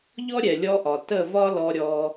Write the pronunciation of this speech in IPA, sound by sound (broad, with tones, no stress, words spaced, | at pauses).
ʎɔ˦ ɾʲɛ˨lʲɔ˧ʔɒ˨ tə˦˨vɒ˦ lɔ˧ɾʲɔ˧